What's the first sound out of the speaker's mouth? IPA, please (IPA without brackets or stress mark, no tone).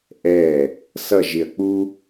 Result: ʔ